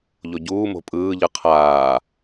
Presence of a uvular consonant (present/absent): present